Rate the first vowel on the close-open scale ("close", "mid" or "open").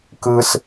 close